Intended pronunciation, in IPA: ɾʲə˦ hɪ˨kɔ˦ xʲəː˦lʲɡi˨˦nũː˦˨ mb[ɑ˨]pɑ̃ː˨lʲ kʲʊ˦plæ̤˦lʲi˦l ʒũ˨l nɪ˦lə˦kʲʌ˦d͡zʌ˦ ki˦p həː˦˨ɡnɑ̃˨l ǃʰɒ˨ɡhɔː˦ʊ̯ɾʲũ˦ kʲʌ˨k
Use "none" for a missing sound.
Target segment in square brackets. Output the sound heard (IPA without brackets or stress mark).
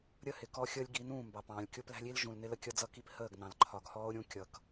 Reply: ɑ˨